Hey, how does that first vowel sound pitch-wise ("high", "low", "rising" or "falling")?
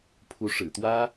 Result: rising